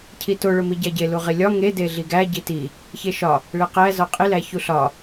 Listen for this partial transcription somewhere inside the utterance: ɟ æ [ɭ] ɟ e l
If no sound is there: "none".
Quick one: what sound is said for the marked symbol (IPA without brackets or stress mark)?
none